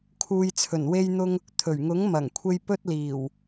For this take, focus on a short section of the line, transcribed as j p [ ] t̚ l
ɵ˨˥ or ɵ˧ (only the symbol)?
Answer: ɵ˧